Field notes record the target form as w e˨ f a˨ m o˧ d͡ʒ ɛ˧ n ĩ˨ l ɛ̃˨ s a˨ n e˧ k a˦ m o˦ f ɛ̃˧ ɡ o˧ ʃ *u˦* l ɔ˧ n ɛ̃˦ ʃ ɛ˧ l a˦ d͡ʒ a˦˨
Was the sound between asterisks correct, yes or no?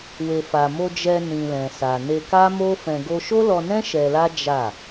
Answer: no